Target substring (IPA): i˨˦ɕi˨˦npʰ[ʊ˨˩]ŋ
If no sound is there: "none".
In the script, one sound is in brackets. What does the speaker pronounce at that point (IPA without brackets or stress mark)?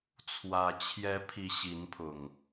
ʊ˨˩